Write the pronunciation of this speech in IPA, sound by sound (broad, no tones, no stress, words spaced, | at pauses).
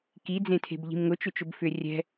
ki d͡zẽtʰe̤bʎi̤mŋʊ t͡ʃʏt͡ʃʊbfʏ rʲɛ̤